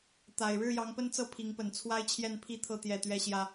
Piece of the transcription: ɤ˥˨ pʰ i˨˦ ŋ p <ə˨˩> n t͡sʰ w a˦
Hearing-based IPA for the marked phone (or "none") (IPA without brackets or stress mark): ə˨˩